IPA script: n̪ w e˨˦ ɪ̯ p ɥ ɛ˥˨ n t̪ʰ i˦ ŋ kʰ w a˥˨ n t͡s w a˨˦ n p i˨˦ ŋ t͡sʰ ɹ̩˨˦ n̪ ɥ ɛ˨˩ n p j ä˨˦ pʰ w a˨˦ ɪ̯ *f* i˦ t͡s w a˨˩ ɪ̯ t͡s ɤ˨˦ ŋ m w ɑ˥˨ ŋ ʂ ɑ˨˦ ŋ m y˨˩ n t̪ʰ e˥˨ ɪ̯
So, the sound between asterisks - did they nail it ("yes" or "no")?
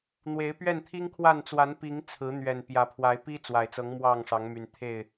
no